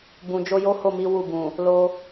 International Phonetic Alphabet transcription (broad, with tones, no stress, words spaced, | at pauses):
bũ˨ d͡ʒo˧jo˦ ho˦˨mi˨˦ wu˦˨ bũ˨ | lo˧